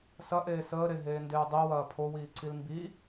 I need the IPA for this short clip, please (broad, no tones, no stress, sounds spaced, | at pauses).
s ɐ ʔ eː s əː ɾ e ɦ eː n d eː dˤ i w ɐː pʰ o w iː ǀ i l m b i